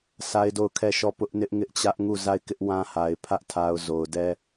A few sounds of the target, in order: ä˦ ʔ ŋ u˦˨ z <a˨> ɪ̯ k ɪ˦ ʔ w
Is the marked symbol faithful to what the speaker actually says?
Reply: no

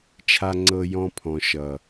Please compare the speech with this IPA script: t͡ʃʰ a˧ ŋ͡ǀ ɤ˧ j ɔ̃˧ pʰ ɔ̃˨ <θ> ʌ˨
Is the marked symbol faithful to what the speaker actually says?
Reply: no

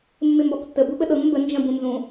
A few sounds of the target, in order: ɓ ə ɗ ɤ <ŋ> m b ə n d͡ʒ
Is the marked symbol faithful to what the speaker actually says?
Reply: yes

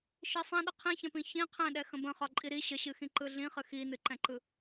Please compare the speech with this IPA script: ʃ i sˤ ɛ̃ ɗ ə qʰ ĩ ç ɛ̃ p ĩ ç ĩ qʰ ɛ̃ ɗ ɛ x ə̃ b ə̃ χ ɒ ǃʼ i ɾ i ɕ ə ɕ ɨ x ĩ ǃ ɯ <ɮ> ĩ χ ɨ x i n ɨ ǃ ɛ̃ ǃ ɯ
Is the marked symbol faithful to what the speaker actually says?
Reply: yes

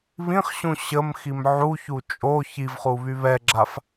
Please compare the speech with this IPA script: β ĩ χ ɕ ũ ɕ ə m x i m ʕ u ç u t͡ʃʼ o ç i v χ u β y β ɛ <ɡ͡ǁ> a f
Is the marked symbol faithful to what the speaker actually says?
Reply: yes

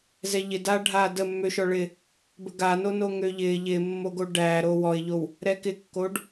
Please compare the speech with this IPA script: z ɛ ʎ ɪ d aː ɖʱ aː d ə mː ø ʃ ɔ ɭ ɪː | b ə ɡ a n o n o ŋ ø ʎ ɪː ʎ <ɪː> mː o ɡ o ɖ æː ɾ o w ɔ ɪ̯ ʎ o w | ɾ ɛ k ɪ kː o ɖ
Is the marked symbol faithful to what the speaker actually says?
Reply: yes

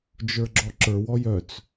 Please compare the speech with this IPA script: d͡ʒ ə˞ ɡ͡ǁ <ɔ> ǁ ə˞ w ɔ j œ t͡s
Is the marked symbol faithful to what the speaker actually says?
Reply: yes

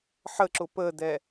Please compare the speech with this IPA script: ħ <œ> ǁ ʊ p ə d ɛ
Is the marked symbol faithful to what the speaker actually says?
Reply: no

